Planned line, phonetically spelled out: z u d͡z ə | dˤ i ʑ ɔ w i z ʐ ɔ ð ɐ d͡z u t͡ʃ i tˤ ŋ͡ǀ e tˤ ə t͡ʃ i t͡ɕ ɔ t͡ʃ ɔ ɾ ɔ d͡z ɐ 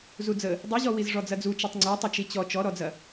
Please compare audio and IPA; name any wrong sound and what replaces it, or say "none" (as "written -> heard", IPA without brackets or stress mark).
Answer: ð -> d͡z